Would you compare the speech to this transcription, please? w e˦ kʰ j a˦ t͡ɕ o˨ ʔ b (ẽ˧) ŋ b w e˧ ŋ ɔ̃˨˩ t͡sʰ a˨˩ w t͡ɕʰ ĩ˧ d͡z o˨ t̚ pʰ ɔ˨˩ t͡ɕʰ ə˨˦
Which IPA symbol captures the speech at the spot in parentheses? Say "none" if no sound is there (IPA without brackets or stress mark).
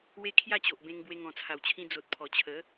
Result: ẽ˧